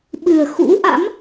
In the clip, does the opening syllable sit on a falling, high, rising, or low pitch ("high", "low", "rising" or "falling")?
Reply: low